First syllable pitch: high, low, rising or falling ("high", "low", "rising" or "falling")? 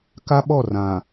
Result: high